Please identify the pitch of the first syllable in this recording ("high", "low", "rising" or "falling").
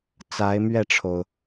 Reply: rising